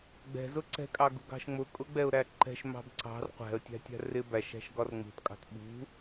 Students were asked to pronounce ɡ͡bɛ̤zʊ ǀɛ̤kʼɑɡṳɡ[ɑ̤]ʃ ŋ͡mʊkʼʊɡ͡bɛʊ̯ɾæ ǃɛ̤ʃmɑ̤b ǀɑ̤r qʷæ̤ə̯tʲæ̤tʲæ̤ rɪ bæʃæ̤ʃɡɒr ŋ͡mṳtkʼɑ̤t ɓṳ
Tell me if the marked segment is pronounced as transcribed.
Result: yes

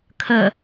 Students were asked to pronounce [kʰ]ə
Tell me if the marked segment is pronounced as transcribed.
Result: yes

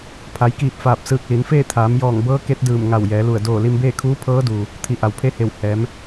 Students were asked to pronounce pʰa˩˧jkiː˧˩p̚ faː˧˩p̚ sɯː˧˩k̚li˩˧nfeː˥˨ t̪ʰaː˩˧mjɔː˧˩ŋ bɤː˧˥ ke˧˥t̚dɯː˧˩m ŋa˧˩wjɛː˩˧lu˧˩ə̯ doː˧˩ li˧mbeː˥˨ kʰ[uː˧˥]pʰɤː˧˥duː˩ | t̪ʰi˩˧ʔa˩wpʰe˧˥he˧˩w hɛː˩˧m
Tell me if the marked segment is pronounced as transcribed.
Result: yes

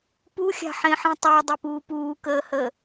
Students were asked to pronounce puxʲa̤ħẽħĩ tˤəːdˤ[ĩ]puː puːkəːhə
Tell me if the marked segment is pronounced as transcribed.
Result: no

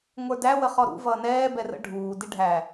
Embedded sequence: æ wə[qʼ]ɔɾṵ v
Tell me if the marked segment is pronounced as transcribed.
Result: no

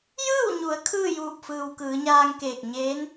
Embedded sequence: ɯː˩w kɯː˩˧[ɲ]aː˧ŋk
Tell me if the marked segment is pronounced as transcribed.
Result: yes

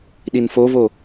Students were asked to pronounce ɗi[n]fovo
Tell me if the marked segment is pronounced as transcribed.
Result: yes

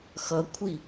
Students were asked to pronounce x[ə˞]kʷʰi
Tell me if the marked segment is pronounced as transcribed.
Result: no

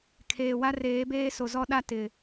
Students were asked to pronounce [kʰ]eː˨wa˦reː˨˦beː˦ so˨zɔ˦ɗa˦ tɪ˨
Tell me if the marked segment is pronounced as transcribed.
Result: yes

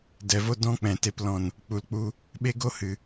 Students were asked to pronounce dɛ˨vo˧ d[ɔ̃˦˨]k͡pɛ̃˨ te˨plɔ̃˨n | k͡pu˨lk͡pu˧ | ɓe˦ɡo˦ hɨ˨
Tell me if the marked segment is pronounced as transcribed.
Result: no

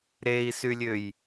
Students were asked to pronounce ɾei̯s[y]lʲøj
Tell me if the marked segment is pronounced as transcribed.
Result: yes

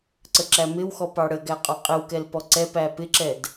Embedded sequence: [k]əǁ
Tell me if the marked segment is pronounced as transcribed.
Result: no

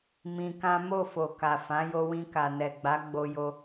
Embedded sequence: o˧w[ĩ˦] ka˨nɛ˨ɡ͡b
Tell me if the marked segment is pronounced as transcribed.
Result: no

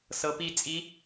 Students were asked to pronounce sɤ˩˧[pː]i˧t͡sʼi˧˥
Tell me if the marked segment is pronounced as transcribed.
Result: no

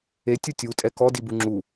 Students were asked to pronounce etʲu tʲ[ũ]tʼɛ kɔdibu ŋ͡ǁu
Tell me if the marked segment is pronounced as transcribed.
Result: no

